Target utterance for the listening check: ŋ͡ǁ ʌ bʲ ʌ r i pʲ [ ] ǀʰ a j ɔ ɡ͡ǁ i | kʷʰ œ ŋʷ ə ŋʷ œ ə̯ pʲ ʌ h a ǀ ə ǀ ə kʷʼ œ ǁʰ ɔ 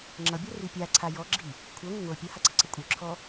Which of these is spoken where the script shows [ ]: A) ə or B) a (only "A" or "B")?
B